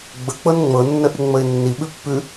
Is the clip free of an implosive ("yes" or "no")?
no